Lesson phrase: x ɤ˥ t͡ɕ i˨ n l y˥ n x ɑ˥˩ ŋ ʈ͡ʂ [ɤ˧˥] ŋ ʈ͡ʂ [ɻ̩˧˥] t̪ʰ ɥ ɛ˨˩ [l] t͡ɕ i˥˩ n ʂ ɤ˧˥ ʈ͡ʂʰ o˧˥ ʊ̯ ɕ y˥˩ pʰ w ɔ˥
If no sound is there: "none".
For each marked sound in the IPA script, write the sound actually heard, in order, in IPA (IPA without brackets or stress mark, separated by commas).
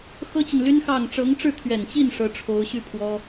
ɤ˧˥, ɻ̩˥˩, n